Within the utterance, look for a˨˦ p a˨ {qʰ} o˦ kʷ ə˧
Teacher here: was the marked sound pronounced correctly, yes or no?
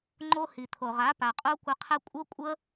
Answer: no